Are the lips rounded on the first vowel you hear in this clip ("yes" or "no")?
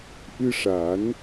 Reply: no